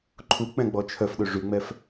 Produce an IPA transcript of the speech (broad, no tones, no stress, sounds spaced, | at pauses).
ǃʰ u k͡p ɛ̃ ɡ͡b ɔ t͡ʃʰ œ f ɗ ø ʐ y ŋ͡m ɛ f